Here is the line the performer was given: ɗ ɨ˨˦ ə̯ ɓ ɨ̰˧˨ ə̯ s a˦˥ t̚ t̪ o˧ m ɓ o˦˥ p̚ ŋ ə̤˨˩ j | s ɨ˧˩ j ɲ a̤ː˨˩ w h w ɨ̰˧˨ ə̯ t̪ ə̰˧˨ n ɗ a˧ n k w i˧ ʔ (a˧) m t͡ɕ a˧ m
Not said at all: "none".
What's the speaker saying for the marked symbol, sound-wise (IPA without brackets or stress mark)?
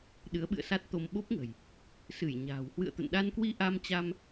a˧